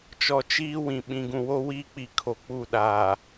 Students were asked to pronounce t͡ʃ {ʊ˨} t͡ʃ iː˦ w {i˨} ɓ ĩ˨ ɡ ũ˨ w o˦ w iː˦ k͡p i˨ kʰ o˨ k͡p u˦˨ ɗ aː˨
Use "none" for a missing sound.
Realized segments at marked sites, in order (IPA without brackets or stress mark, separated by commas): ɔ˨, ĩ˨